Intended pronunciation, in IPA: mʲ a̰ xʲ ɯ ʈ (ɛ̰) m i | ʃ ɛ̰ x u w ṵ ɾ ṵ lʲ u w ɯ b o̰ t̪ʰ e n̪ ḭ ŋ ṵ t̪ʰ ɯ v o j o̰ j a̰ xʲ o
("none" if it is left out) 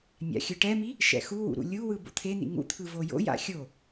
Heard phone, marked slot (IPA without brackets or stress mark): ɛ